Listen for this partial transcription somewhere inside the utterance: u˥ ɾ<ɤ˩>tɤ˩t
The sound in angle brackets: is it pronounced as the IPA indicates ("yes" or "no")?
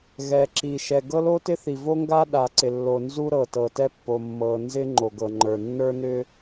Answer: yes